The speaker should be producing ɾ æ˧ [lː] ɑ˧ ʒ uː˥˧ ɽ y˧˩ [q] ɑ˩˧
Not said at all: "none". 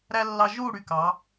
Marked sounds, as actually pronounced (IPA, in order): lː, k

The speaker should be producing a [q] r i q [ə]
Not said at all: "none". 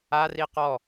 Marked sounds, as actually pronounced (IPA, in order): none, ɔ

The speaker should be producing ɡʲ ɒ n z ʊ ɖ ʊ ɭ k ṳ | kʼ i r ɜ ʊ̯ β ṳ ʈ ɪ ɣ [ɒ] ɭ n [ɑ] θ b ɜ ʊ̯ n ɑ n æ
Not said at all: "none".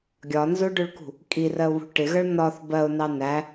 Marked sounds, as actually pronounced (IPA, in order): ʌ, ɒ

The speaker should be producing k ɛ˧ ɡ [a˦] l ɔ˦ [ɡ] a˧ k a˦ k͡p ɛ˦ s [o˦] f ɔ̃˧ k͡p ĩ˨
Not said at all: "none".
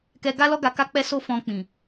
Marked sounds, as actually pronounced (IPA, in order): a˦, ɡ, o˦

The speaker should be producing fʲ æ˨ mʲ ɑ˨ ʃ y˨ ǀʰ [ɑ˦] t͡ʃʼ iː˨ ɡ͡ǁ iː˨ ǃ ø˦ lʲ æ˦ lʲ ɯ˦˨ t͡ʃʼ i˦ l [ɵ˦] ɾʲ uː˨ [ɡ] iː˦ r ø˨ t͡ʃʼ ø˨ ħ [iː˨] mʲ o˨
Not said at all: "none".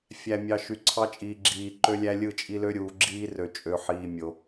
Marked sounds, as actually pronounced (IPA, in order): ɑ˦, ø˦, ɡ͡ǁ, iː˨

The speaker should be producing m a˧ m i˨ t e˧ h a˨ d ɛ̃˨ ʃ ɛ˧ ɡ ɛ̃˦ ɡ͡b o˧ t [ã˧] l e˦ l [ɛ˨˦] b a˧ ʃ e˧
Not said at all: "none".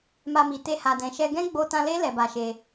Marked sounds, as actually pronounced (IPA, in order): ã˧, ɛ˧

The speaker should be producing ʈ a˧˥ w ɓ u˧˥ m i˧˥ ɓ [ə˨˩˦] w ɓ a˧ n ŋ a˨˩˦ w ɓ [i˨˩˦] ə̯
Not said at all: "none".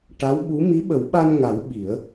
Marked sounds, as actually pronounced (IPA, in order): ə˨˩˦, i˨˩˦

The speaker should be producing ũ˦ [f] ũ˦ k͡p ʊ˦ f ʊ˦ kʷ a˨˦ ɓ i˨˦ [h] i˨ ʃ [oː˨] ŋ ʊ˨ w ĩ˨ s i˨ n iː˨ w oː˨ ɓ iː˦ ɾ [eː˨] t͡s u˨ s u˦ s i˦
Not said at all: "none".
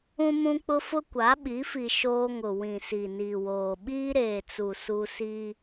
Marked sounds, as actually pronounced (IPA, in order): m, f, oː˦, eː˨

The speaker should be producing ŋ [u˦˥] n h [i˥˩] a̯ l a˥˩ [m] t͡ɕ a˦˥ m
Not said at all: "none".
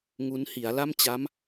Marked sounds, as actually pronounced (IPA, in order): u˦˥, i˩˦, m

